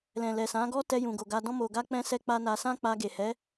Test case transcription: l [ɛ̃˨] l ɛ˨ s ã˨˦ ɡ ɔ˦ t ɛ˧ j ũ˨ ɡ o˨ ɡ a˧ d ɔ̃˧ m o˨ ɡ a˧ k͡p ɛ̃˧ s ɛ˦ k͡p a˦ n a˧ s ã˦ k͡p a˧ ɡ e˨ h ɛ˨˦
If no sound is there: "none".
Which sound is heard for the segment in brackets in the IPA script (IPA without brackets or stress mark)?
ɛ̃˨